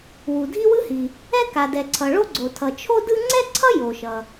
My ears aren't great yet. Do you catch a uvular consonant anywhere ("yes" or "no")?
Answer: no